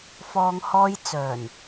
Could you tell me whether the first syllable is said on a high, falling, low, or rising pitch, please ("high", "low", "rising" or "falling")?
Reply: low